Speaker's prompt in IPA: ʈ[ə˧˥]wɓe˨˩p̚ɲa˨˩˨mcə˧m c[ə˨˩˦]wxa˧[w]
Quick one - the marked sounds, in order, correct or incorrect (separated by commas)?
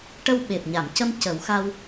incorrect, correct, correct